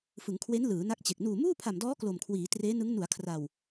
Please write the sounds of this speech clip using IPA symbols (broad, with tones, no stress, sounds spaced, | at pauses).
f ɯ˩˦ ŋ kʰ w e˦˥ n l ɯː˩˦ n a˦˥ k̚ t͡ɕ e˨˩ k̚ n uː˨˩ m uː˥˩ pʰ a˨˩ m d ɔː˦˥ k l o˨˩ m kʰ w iː˩˦ t r eː˦˥ n ɯ˦˥ ŋ n u˩˦ a̯ kʰ r a˨˩ w